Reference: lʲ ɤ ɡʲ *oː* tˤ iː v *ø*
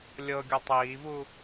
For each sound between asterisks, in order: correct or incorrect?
incorrect: o, incorrect: u

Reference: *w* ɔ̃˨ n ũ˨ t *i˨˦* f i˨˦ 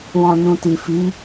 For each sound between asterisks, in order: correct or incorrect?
correct, incorrect: i˨

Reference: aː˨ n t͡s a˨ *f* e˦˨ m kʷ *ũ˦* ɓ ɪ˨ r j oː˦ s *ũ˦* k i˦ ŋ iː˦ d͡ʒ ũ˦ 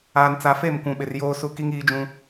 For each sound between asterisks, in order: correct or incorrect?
correct, incorrect: ũ˨, incorrect: u˦

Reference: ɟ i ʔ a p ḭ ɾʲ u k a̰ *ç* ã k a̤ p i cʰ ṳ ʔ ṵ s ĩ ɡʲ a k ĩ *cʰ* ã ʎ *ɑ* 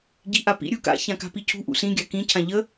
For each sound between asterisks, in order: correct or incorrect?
correct, correct, incorrect: ə

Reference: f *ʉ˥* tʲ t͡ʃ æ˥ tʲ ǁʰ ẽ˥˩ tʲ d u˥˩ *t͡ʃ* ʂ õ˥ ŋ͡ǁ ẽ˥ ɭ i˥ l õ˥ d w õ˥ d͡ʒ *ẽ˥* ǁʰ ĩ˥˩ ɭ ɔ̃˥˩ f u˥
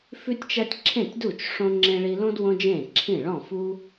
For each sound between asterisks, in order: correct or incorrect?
correct, correct, incorrect: ẽ˥˩

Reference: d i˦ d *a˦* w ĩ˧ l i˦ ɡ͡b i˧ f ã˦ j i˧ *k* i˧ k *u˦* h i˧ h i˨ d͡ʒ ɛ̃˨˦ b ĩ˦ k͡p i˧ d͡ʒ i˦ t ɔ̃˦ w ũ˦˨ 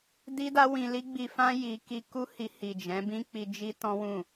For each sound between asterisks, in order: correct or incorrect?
correct, correct, correct

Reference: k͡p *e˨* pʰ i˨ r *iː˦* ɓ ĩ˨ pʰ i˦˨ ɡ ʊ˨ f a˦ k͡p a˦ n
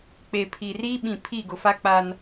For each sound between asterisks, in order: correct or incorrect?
correct, correct

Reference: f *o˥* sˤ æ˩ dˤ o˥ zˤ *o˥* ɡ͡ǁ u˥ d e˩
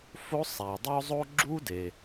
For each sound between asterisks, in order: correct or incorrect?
correct, correct

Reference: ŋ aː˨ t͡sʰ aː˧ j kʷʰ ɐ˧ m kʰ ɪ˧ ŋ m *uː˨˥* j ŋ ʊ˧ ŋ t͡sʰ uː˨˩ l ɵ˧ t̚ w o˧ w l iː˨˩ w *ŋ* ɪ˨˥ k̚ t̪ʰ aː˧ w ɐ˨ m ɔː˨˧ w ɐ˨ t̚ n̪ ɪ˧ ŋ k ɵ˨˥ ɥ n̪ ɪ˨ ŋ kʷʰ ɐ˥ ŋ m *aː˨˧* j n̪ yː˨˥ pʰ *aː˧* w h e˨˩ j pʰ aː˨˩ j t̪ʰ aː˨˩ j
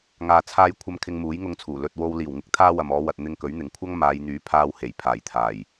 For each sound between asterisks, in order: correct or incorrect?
correct, correct, correct, correct

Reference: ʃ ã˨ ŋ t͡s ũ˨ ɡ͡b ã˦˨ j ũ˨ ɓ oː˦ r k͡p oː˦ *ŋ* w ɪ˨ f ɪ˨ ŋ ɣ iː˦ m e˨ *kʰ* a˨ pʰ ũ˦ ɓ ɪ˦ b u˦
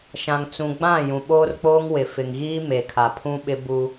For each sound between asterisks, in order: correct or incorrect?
correct, correct

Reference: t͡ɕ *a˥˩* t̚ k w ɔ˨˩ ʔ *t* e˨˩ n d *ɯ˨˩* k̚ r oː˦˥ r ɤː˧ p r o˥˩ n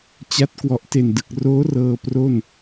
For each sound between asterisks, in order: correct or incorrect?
incorrect: a˦˥, correct, correct

